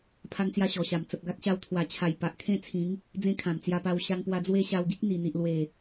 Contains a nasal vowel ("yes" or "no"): yes